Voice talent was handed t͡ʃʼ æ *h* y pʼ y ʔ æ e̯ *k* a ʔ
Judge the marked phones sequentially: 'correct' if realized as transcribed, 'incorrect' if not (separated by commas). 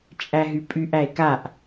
incorrect, correct